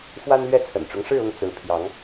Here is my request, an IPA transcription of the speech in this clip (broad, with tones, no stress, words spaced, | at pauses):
fwa˦nlɥɛ˥˨t͡sʰə̰˨˩nʈ͡ʂʊ˦ŋ ʂɻ̩˥˨ʊ˥˨ŋ t͡sɹ̩˨˦ pʰjɑ˨˦ŋ